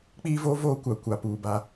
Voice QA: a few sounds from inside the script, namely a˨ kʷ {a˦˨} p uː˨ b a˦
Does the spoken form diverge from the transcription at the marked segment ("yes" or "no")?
yes